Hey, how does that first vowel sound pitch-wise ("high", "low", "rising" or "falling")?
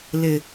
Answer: low